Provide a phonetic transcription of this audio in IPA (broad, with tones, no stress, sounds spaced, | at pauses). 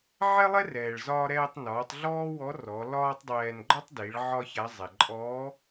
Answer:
ʕ ɛ˥ lˠ ɛ˥ r ɛː˩ ɭ z ɒː˧ ɾ ɛː˧ tˤ n ɒː˩˧ tˤ ɮ ɔː˥ w ɔ˧˥ r ɔ˩˧ l ɒː˥ tˤ dˤ ɛː˧ n ɡ͡ǃ ɒ˥ tˤ d i˩˧ ɭ ʕ ɒ˥ ç a˧˥ zˤ ɛ˩ ǃʼ ɔ˧˥